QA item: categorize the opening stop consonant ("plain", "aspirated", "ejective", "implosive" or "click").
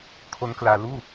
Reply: aspirated